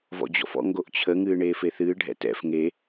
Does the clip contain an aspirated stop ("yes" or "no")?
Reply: yes